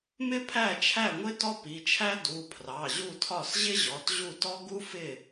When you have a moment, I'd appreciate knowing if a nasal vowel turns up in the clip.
no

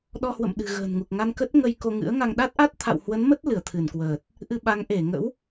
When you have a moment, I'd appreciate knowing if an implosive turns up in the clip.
yes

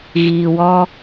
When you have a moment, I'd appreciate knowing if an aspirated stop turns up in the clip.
no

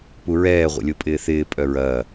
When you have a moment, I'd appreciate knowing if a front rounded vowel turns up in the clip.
yes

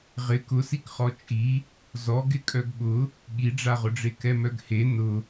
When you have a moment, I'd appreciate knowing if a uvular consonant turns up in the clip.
yes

